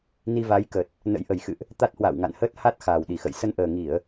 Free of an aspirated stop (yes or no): yes